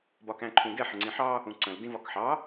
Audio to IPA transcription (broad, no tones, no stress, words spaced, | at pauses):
bɒkæ̃ǃʰũɡɛ ħəŋ͡ǀĩħɑ | ũǀə̃l dĩvɒkħɑ